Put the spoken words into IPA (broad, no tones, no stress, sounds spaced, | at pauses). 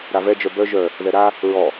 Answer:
ɾ a v ɛ d͡ʒ œ b œ ʒ œ | ð ɛ ɾ a | ɹ ɔ